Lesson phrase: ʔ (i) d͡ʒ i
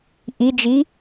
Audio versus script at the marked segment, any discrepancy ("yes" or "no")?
no